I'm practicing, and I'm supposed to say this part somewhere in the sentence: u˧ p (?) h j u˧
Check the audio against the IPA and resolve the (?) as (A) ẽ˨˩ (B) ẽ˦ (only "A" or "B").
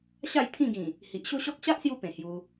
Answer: A